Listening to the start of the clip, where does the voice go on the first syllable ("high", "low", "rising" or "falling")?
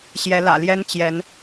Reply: rising